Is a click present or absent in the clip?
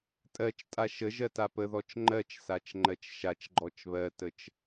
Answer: present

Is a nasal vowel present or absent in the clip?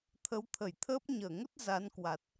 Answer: absent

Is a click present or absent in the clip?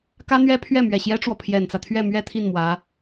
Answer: absent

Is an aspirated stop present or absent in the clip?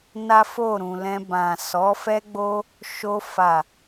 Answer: absent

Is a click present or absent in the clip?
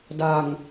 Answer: absent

